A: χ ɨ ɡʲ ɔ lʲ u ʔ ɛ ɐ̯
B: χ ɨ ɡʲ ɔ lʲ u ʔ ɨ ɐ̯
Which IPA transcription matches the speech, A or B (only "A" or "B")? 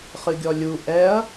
A